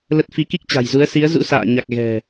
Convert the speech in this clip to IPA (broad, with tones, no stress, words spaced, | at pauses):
lə˦˥t̚ fi˨˦ki˦˥k̚t͡ɕa̤˨˩jzu˨˦ə̯ si˨˦ə̯zṵ˧˥ sa̰ː˧˨ɲa˨˩k̚ ɣɛ̤˨˩